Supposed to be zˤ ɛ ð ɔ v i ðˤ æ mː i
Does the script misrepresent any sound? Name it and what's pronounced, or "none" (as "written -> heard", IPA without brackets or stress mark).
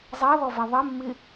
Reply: æ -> ɛ